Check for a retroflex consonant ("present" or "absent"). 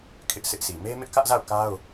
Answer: absent